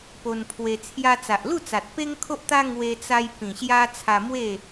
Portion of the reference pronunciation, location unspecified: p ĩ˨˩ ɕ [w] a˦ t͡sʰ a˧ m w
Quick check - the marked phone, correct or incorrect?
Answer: incorrect